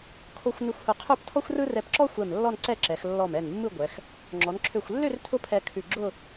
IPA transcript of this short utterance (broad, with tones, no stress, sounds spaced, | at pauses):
kʰ o˧ xʷ n ʉ˧ xʷ h ʊ˧˩ qʰ ø˥˧ p tʰ ɔ˥ xʷ r ɯ˥ r ɛ˧ p ǁ ɔ˥ xʷ ɛ˧˩ m lː ɔ˥˧ n ǀ ɛ˥˧ ǁ ɛ˩˧ x lː ɔ˧˩ m ɛ˧˩ n mː ɯ˥˧ ɡʷ ɛ˩˧ x | ŋ͡ǁ ɔ˩˧ n ǁʰ ø˧˩ xʷ lː ø˥˧ r tʰ ʊ˥ pʰ ɛ˧ kʰ ʉ˧˩ ɡ͡ǁ ʊ˥˧